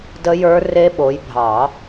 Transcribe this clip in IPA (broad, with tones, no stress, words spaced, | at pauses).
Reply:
də˦˥jə˞˦˥ re˦˥ɓo˨˦jbʱɑ˨˩˦